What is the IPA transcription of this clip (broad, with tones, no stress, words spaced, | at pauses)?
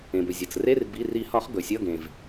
ẽ˩bɵ˩ zʲʌ˩t͡s re˧˥˧r bi˩˧˩ri˨˩˦hɒ˨˩˦χ ɡɵ˩sʲʌ˧˥˧ɡẽ˩v